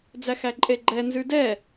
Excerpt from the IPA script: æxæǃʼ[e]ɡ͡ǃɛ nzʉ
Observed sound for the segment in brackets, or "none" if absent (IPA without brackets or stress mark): e